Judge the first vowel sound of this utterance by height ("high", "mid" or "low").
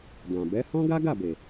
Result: low